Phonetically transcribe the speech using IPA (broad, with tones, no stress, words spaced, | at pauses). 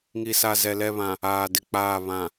ŋi˨sa˨zɛ˨ lɛ˦˨βã˨ | aː˨dɪ˨k͡paː˦˨ βã˨